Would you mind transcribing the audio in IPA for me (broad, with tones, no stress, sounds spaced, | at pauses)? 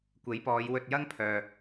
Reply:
kʷ e˨˥ j p ɔː˨˧ j w ɵ˧ t̚ j ɐ˥ ŋ pʰ œː˨